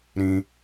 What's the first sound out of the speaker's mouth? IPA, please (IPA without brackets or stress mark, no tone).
ɾ